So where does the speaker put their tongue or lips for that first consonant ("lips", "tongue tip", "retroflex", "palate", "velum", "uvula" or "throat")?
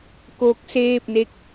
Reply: velum